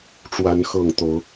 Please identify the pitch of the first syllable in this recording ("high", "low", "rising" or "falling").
rising